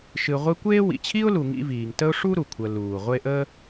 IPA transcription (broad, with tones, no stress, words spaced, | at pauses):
ʃɨ˨ʁʷe˦kʷeː˥ wḭ˩t͡ɕʰi˥ʊ̯lu˨ ŋḭ˦viː˨ŋtə˥ʊ̯ ʂu˥ɾu˩kʷʰəː˨ luː˩ʁʷe˦ʔə˥